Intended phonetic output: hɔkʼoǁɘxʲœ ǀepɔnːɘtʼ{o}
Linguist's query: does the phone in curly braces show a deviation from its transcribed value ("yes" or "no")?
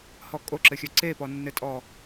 yes